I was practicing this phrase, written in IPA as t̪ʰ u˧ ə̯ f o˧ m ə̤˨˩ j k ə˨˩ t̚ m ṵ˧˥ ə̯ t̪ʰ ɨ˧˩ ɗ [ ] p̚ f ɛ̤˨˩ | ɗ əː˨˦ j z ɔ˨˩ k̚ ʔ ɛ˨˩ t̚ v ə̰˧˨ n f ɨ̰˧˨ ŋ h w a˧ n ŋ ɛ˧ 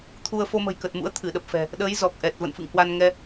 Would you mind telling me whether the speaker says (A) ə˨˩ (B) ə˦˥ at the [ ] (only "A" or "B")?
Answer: A